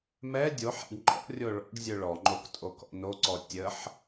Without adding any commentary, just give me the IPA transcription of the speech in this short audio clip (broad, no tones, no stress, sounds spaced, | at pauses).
m ɛ dʲ o ħ ɛ̰ ɖ ŋ͡ǃ ɔ̰ rʲ o ɭ ɔ̰ ɖ zʲ ø ɭ ɔ ŋ͡ǃ o k tʼ o k ɔ̰ n o ǀ ɔ tʲ ə ħ